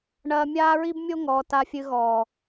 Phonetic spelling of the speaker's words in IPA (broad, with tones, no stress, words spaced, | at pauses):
ɳɐː˧mʲaː˦ɹi˦bmʲo˦ ŋɔː˨ta˧fʲɨ˧ɣɔː˨